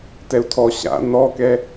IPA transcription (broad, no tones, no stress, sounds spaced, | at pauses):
t ɛ u̯ tʰ ɔ ɕ a̰ n ɔ k ɛ